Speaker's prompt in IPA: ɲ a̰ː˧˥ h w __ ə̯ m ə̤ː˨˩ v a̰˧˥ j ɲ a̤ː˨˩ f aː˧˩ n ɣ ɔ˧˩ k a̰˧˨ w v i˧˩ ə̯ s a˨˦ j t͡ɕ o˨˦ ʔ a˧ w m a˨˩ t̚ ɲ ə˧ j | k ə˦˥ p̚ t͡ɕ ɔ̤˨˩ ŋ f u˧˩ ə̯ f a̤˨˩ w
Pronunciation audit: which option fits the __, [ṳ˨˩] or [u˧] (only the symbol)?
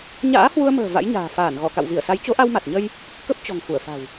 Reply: u˧